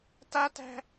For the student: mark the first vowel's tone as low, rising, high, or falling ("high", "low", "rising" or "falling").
high